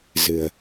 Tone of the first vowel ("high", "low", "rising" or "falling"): low